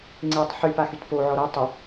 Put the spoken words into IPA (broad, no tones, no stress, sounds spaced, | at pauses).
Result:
ŋ͡ǀ e tˤ ħ y p a x y t p o ʕ ɔ ɾ o tˤ ɐ